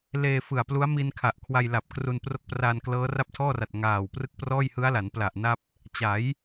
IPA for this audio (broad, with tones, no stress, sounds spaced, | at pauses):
l eː˧ f ɯ˨˩ a̯ p l u˦˥ a̯ m i˧ n kʰ a˨˩ ʔ kʰ w a˧ j l a˨˩ p̚ k r u˧ n p r o˦˥ k̚ p r a˧ n k l ɤː˦˥ r a˥˩ p̚ tʰ ɔː˥˩ r a˨˩ t̚ ŋ aː˨˩ w p r ɯ˦˥ k̚ p r ɔː˥˩ j h ɯ˦˥ a̯ l a˩˦ n p l a˨˩ ʔ n a˥˩ p̚ | t͡ɕ a˩˦ j